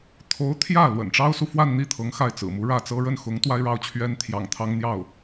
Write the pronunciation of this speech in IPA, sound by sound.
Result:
t̪ʰ o˧˥ ʊ̯ t̪ʰ j ä˥˩ l w ə̰˨˩ n ʈ͡ʂ ɑ˥ ʊ̯ s u˨ f w a˥˧ n n̪ i˥˩ t̪ʰ ɤ˧˥ ŋ x a˥˩ ɪ̯ t͡s ɹ̩˨˩ m u˧˥ ɻ ä˥˩ t͡s ɤ˥ ɻ ə˥˩ n x ʊ˧˥ ŋ t̪ w a˥ ɪ̯ ɻ ɑ˥˩ ʊ̯ t͡ɕʰ ɥ ɛ˥ n t̪ʰ j ɑ̰˨˩ ŋ t̪ʰ ɑ˥ ŋ n̪ j ɑ˥˩ ʊ̯

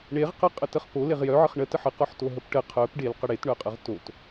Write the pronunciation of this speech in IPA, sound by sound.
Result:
ɳ e ʁ q ə qʼ ə t ə χ p o l e ʁ j œ ʕ ə χ ɳ ə t ə ħ ə q ɔ ħ t o ɦ ə p ʈ ə qʰ œ p ɖ e l q ə ɽ e t ɳ œ qʼ ə ʁ t o t

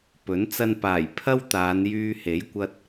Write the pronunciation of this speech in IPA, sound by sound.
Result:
p ɵ˨˥ n t͡s ɐ˧ n p aː˨˩ j pʰ ɐ˥ w t̪ aː˨˧ n j yː˧ h e˨˥ j kʷ ɐ˧ t̚

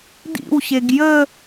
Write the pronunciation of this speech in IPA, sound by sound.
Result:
d ḭ w ɕ e ɡ j ə

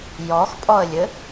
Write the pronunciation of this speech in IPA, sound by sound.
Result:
j ɔ x pʼ ɔ ə̯ lʲ ɘ

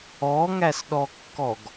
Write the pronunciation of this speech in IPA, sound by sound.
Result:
ɔ ŋ æ s ɗ ɔ kː ɔ ɡ

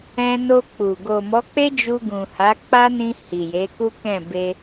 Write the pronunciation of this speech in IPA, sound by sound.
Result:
ɛ̃˧ n o˧ k͡p u˨ ɡ o˨ m ɔ˨˦ k͡p e˦ d͡ʒ u˧ ɡ ũ˨ h a˨˦ k͡p a˦ n ĩ˧ h i˨ j e˨˦ k u˦ k ɛ̃˦˨ b e˧

